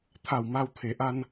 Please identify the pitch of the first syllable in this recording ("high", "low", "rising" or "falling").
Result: low